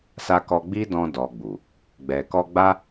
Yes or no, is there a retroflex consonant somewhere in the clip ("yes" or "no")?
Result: no